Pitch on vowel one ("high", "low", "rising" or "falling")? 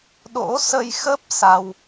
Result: rising